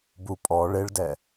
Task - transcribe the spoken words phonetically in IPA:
b u pʼ ɔ ɭ e ɭ d ɛ

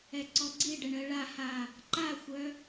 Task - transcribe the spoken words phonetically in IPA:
ɛ ǀ ɔ ɡ͡ǀ i ɖ ɛ ɳ ɜ ɭ a h a | ǃ a xʷ œ

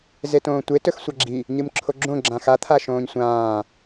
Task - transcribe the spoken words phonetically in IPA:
z e t õː tʷ e t ɵ x sʷ a ɡ͡ǁ i | ɲ ɨ m ǁʰ o ɡ͡ǁ õ ɡ͡ǁ ã x a t̪ʰ a ʃ õː ɲ sʷ ãː

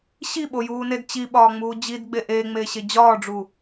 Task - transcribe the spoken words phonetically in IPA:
ɕ i ɓ o j uː n e d t͡ɕ i ɓ ɒː ŋ͡m uː d͡ʑ i d ɡ͡b e ʔ eː ŋ͡m eː ɕ e d͡ʑ ɒː ɖ͡ʐ u

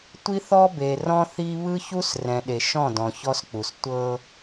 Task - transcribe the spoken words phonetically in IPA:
tʷ i˦ θ ɔ˦ b e˨ r ɔ̃˦ θ i˦ β ɯ˦ ç u˦ s r ɛ̃˨ ɗ e˨ ʃ ɔ̃˦˨ d ɔ̃˨ ç ɔ˦ s k͡p u˨ s tʷ ɤ˦

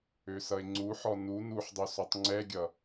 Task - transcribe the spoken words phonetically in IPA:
ø s ʌ e̯ ŋ͡ǀ u ħ ɔ n u n u ħ dˤ u s ɔ tˤ ŋ͡ǀ ɛ ɡʲ ʌ

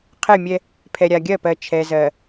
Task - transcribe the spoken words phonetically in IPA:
qʰ ɛ˦˨ mʲ ɛ˦ | pʰ ɛ˨ ɾʲ a˨ ɡʲ ɜ˦˨ p ɜ˨ t͡ʃʰ ɛ˨ z ɜ˨

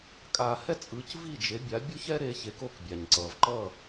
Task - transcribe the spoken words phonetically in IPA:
kʼ a˧ h ɛ˥ t͡sʼ ɯ˩˥ c v i˥˩ d͡ʒ e˩˥ bʲ a˩˥ bʲ o˥ ç ɛ˥ ɾ e˧ ç e˩˥ k o˧ k bʲ a˩ ɲ ǀ ʌ˩ v ǃ ʌ˥˩

